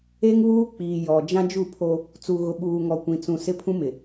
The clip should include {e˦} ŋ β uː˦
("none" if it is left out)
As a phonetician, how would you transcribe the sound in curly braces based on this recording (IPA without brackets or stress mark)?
e˦